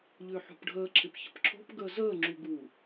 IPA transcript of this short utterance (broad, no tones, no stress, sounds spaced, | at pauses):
ʎ ʏː ħ o̤ p ɖʱ əː ǁʰ ɪ p ç ə̤ p ǁʰ o̤ p ɡ əː z əː ŋ͡ǁ u ɡ uː